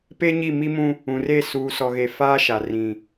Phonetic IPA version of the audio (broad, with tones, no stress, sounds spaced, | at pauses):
p e˦ ɲ i˦˨ m i˦ m ũ˦ | ũ˨ r e˦˨ s uː˨ s ɔ˨ ɣ e˨ f aː˦ ʃ a˨ r ĩ˨